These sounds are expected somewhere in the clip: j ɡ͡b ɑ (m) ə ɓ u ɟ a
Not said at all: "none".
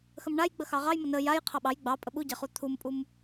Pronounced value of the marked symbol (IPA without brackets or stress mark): pʼ